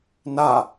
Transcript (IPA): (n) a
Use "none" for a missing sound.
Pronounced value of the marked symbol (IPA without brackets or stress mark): n